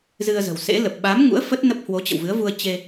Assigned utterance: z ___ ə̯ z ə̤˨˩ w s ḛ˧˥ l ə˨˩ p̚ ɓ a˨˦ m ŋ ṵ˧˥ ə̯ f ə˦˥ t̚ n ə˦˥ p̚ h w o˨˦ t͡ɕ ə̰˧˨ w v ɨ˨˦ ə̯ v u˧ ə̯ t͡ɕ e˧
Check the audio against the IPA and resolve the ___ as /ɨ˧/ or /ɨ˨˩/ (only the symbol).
ɨ˧